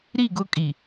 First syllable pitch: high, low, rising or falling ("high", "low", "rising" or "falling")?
falling